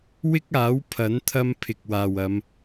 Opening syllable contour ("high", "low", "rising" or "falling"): high